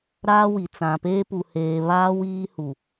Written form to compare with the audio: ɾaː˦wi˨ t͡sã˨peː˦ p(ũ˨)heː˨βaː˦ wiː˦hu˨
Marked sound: incorrect: u˨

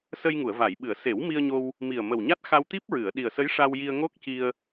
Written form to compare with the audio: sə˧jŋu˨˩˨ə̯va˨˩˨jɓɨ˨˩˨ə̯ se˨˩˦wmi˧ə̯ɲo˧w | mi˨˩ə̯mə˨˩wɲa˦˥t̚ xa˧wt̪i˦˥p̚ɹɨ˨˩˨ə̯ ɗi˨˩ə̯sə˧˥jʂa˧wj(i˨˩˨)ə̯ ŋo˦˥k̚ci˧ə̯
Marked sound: incorrect: i˧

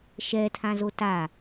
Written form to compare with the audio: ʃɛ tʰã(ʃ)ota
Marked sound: incorrect: z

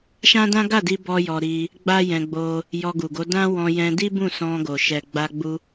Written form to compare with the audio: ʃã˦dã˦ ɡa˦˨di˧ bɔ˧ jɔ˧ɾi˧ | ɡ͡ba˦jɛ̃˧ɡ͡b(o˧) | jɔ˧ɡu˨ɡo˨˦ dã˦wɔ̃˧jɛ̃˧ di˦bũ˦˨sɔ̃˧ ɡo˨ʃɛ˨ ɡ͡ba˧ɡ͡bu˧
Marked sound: correct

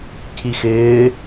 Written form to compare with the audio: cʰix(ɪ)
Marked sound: incorrect: ɪː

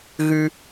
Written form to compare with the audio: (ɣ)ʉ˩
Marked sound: correct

